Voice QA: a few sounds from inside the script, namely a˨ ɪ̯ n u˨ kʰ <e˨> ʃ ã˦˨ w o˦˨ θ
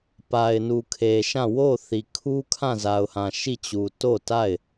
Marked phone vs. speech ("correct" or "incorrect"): correct